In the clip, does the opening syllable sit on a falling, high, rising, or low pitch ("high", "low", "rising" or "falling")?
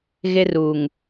high